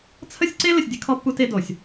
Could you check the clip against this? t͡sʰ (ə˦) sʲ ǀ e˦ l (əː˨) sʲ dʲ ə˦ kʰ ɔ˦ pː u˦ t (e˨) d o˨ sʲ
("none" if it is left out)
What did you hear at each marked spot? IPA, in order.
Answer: ə˦, ə˨, e˦

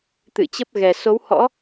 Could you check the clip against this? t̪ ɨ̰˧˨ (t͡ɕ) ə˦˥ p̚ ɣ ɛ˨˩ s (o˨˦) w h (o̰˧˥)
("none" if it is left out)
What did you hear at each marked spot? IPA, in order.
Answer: t͡ɕ, o˨˦, ɔ̰˧˥

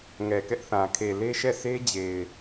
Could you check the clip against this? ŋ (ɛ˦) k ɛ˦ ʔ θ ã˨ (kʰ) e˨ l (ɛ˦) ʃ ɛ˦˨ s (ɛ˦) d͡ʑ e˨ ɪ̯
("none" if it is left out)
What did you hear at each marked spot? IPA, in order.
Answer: ɛ˨, kʰ, e˦, e˦

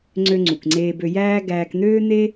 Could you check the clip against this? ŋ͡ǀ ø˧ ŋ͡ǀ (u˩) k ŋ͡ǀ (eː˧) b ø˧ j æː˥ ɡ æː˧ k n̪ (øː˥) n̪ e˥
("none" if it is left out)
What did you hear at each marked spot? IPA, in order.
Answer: u˩, eː˧, øː˥

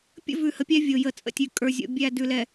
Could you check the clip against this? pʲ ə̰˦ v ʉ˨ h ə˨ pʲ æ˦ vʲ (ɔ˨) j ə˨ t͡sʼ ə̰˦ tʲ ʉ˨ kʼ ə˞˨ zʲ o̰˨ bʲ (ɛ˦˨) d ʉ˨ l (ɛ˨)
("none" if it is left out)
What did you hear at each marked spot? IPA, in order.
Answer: o˨, æ˦˨, ɛ˨

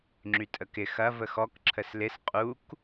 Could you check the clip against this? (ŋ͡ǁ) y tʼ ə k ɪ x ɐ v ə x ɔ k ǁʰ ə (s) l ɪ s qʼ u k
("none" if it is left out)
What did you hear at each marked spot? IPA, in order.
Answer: ŋ͡ǁ, s

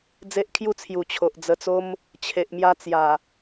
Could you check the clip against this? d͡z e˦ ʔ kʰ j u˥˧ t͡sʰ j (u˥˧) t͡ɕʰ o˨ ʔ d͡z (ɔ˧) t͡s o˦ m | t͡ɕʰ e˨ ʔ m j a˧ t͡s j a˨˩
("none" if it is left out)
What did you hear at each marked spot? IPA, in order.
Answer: u˨˩, ə˧

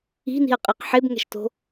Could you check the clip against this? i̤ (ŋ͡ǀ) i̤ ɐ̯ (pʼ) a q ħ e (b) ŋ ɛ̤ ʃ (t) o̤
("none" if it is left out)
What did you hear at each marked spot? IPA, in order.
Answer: n, qʼ, b, t

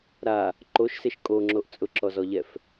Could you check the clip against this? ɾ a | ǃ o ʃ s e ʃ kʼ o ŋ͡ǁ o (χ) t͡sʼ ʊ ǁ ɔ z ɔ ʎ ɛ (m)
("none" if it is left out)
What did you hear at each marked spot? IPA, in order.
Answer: ʔ, f

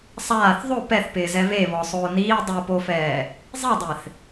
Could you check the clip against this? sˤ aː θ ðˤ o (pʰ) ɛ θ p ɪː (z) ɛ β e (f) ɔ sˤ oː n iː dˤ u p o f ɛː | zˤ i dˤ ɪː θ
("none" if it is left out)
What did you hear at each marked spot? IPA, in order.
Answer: p, z, β

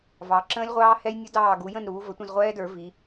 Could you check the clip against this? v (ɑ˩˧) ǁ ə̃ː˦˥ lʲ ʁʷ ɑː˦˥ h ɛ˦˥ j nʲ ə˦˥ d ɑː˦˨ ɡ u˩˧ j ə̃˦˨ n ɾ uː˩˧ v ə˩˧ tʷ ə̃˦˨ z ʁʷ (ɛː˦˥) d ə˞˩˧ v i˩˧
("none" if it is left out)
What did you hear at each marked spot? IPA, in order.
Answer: ɑ˩˧, ɛː˦˥

